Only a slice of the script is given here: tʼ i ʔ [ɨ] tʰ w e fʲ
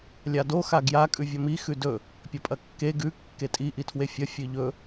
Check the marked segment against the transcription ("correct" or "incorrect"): incorrect